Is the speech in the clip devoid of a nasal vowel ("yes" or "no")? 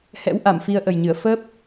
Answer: yes